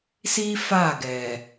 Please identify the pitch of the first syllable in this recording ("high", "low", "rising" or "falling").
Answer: high